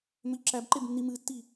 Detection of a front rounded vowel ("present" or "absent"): present